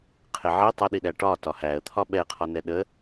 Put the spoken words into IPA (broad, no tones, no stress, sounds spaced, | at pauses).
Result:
qʰ ɪ ʕ i tˤ ə ɗ i ɗ æ ʈ ɒ t ɒ h æ ə̯ t̪ʰ ɒ ɓ ɛ qʰ ɒ n ɛ ɗ ə